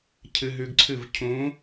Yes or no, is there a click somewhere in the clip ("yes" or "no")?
yes